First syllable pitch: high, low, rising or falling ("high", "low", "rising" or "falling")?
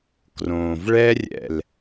low